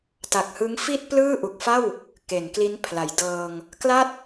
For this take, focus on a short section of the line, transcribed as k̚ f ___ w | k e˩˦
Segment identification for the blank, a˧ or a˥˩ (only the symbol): a˥˩